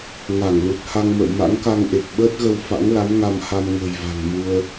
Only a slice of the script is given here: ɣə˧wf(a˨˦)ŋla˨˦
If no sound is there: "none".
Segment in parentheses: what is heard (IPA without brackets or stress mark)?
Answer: a̰˧˥